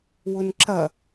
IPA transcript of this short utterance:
w ʊ n ǁ ɐ

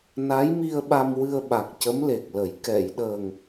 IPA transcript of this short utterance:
n a˧˥ j m i˧ ə̯ ɓ a˧ m w ɨ˧ ə̯ ɓ a˨˩ k̚ c ə˧˥ m l e˨˩ k̚ l ə˨˩˦ j k ɛ˨˩˨ j ɗ əː˨˩ ŋ

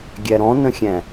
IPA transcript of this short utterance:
ɡʲ æ ɾ ɔ̃ n ə̃ xʲ æ̃

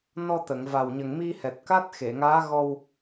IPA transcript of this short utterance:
n ɔ˧ t̪ ə˨˩˨ ŋ v a˨˩ w ɲ ə˨˩ ŋ m i˧ h ɛ˨˩ t̚ k a˦˥ t̚ x e˨˩˨ ŋ aː˧˥ ɣ ɔ˧ w

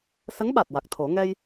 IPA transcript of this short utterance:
s ə˧˥ ŋ ɓ a˨˩ t̚ w a˨˩ k̚ t̪ʰ o˨˩˦ ŋ ɛ˧ j

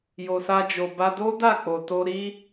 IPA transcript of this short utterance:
j o˨ s a˧ d͡ʒ o˨ b a˧ d o˦ d a˦˨ k͡p o˧ t o˦ ɾ i˦

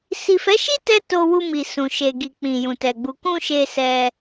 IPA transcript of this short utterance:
s i˨ f ɛ˨˦ ʃ i˦ t ɛ˦ t o˧ w u˧ m i˨ s ũ˨ ʃ e˨ ɡ i˨ k͡p ĩ˨ j ũ˨ t ɛ˨ ɡ͡b u˨ k ũ˧ ʃ e˧ s ɛ˧

